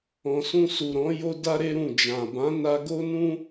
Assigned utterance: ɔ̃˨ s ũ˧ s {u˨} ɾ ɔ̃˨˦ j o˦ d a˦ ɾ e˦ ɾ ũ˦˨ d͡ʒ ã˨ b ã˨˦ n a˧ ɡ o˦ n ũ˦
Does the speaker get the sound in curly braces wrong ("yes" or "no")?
no